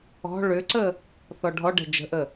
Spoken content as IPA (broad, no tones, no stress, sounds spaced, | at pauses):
ɔ̤ ɭ ʏ ǀ ə | θ ɔ ɖʱ ɔ ɖ ɛ̤ d͡ʒ ə̤ ʔ ə